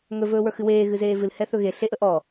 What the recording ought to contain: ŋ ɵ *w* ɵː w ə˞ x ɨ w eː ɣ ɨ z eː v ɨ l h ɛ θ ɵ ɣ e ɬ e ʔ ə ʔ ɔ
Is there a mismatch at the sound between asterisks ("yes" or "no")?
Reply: yes